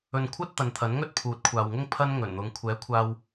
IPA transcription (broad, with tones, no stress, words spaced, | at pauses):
ɵ˧nkʷʰɐ˥t̚t̪ɐ˨˧nt̪ʰɐ˨˥n ŋɵ˥t̚pʰuː˨˥t̚kʷʰaː˨wŋʊ˥ŋ pʰɐ˥nŋɵ˨˩nn̪ʊ˨˧ŋ kʷʰɛː˨˥kʷʰaː˧w